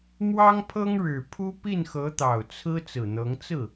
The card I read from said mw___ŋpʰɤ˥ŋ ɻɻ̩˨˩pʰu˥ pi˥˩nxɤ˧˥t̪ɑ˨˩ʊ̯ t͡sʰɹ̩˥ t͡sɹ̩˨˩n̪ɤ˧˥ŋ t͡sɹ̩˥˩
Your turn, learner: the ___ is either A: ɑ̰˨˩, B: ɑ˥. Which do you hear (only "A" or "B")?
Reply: B